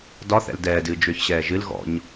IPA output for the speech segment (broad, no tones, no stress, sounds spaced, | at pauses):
d ɒ θ ɛ̰ l d ɛː d ɨː d͡ʒ ʏː ç ɕ ɛː ʒ ɨ l ɣ ɔ̰ ɲ